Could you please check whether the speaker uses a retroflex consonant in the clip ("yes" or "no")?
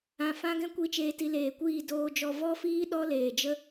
no